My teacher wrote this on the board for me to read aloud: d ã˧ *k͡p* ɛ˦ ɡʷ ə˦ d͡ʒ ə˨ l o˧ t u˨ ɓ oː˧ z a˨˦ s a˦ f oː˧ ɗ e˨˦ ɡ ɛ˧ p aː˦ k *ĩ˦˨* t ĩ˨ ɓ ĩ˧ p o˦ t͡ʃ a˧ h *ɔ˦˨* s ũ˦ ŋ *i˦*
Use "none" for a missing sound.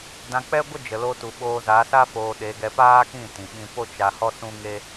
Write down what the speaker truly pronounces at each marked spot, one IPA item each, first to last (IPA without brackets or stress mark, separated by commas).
k͡p, ĩ˦˨, ɔ˦, e˦